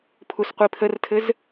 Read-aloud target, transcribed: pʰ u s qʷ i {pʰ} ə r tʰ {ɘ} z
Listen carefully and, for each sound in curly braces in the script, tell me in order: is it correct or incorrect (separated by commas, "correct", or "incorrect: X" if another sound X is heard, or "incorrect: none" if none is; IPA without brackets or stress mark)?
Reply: correct, correct